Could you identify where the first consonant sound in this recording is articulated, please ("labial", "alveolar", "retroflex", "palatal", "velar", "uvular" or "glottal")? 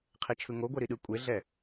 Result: uvular